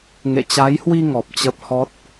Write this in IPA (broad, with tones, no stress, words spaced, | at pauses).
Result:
ŋḛ˧˨t͡ɕa˨˦jhwi˧ ŋɔ˨˩p̚t͡ɕə˦˥p̚hɔ˦˥t̚